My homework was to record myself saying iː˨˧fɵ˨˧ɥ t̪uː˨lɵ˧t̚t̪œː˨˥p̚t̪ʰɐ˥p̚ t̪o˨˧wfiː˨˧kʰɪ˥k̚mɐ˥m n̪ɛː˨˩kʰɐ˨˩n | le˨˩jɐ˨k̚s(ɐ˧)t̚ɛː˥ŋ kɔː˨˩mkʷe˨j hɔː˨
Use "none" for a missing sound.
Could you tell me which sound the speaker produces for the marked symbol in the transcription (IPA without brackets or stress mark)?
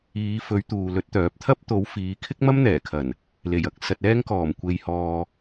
ɐ˧